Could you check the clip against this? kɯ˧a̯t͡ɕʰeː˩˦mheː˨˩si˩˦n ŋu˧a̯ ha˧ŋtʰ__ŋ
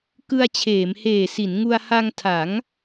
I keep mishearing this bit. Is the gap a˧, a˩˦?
a˩˦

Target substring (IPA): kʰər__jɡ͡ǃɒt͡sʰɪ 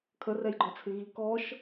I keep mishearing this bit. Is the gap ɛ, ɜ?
ɛ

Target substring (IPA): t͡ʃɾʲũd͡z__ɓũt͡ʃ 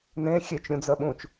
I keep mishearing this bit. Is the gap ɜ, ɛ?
ɜ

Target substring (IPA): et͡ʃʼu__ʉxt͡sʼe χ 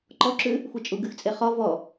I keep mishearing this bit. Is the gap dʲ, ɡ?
ɡ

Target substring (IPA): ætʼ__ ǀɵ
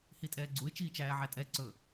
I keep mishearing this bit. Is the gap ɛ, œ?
ɛ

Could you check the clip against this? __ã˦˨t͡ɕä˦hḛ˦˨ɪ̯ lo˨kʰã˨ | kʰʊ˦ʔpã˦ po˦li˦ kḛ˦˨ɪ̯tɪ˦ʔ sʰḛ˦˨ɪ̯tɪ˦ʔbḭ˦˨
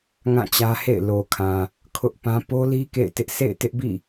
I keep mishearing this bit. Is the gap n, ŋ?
ŋ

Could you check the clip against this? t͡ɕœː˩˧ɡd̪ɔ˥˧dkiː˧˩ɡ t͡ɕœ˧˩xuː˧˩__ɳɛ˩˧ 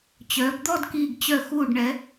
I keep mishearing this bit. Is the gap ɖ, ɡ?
ɖ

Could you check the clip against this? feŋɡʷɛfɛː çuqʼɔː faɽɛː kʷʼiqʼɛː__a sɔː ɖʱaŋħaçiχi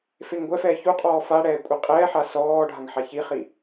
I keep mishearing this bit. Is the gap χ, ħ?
ħ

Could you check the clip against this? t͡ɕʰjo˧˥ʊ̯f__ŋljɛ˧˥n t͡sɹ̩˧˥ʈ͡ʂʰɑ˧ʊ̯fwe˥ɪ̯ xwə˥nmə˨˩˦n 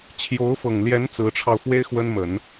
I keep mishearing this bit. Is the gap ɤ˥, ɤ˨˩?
ɤ˨˩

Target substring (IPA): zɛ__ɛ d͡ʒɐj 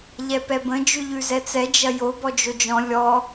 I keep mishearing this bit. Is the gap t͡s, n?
t͡s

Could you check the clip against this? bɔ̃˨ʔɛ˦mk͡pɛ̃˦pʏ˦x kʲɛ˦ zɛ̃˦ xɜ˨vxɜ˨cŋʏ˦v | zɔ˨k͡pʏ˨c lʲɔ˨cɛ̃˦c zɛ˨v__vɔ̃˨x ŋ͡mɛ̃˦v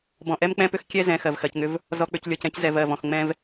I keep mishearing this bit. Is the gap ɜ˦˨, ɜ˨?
ɜ˦˨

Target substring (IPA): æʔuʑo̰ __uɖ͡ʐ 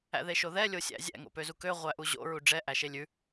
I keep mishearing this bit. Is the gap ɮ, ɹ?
ɹ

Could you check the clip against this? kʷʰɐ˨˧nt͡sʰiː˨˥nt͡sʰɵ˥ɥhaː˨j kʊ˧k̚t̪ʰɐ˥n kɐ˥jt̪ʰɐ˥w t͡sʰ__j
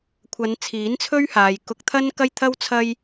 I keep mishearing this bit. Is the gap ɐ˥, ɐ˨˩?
ɐ˥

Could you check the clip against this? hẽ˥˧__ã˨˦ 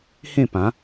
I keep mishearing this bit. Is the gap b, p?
p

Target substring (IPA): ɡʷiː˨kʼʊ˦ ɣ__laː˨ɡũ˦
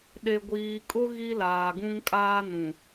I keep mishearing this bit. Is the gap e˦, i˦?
i˦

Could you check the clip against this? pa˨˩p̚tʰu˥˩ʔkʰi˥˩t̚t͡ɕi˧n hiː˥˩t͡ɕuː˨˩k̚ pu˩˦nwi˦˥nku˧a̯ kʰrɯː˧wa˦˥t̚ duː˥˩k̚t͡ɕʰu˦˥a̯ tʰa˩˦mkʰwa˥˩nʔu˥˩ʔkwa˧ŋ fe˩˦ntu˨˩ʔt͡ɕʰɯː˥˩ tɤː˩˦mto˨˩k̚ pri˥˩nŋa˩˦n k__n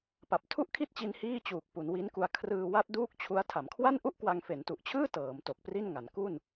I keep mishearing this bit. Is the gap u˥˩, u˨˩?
u˥˩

